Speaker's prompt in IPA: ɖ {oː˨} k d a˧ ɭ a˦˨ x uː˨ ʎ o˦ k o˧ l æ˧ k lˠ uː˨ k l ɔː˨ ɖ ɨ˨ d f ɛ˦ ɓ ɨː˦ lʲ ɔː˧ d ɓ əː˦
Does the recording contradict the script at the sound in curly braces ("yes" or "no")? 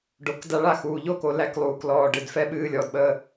yes